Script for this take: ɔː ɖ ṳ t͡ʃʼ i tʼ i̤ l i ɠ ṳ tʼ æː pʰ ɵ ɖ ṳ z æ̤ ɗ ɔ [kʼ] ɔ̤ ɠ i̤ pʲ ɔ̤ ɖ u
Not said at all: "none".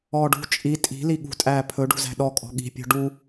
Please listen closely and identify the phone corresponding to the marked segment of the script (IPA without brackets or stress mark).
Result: kʼ